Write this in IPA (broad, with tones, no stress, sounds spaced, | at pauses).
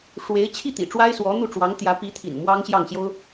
ʂ w e˧˥ ɪ̯ t͡ɕʰ i˥˩ t̪ ḭ˨˩ ʈ͡ʂ w a˥ ɪ̯ s w ɔ˧˥ n̪ u˥˩ ʈ͡ʂ w ɑ˧˥ ŋ t̪ j ä˧˥ p i˧˥ t̪ʰ ḭ˨˩ n m w ɑ˥ ŋ ɕ j ɑ˥˩ ŋ ɕ j o˥ ʊ̯